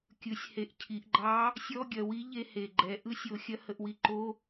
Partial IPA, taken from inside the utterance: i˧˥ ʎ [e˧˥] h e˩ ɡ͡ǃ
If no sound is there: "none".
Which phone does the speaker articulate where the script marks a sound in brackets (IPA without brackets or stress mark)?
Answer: e˧